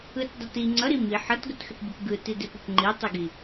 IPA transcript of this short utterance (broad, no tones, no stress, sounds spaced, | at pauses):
ɯ t dˤ ʌ t i ŋ͡ǀ ʌ ɾ i m i ħ ʌ t ɡ ə t x ʏ t bʲ ə p ɡ ɯ t i d e p o p ŋ͡ǃ i tˤ ɯ ɡ i